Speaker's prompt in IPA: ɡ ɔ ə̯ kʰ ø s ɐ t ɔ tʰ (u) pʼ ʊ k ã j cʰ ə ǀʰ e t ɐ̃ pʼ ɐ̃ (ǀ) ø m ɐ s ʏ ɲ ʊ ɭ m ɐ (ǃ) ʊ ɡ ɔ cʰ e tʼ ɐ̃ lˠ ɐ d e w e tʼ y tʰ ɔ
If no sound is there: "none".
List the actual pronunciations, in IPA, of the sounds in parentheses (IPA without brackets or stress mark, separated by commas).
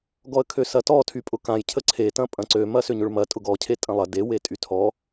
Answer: y, ǀ, tʼ